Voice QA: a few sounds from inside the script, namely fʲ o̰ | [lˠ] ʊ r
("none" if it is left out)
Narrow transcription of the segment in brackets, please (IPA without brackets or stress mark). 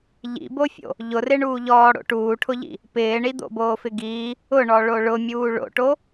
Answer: ʎ